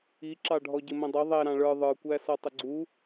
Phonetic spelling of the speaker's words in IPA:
iǁɑɖʱɔɟɪ mə̃dˤʌ ðˤɛ ɾɑ̃ɭə˞ ðˤə˞kʷæ sɔtˤəɡ͡ǀu

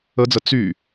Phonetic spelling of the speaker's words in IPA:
əd͡zə t͡sy

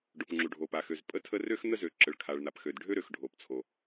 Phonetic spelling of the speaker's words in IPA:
ɖo˩pŋ͡ǁu˩ɖʱo˩pa˩ xø˩zpʼə˥tʰə˥ rø˥xn̪ə˥zø˩ ǁə˩ɭkʰa˩ɭn̪a˩pxø˩d ɖʱø˥ɾø˩xɖʱo˩pt͡sʰo˩

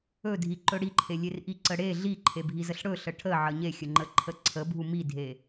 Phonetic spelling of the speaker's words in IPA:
ɵdʱi ǃɵɽiǃʰelʲer ʔiǀəɽe ɮiǃʰebʱizəɬ ɽɵ ɬəʈʰəʕə ɲexʲə ŋ͡ǃəǃʰəǀʰəbʱu midʱe

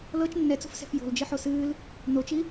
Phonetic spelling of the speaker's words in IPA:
lɤt͡ʃ nːɛt͡sṳfsɛ̤f jo̤ld͡ʒɨħo sɨːl | not͡ʃi

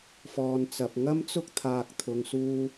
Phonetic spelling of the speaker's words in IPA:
fɔː˨nt͡sɐ˨p̚ ŋɐ˥mt͡sʊ˥k̚ t̪ʰaː˧k̚ t̪ʰʊ˧ŋsuː˥

